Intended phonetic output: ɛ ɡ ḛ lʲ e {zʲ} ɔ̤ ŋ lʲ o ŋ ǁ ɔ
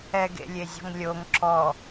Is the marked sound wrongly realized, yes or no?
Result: no